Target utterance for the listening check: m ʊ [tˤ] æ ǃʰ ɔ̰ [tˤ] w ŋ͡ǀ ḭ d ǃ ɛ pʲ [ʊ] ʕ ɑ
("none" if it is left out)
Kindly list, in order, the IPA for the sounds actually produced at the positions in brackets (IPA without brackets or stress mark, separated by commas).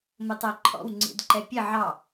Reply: tˤ, none, ə